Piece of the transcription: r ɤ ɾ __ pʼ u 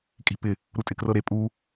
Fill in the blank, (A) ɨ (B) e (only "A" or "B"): B